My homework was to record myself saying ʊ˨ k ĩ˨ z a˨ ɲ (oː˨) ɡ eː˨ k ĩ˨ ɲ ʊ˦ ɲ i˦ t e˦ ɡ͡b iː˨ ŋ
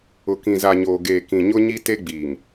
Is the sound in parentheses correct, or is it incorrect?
correct